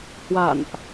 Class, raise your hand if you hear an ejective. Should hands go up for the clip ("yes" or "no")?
no